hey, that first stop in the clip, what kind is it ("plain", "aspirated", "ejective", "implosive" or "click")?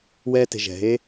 plain